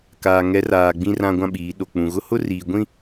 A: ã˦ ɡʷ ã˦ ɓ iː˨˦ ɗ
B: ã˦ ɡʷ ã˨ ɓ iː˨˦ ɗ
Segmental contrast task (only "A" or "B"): A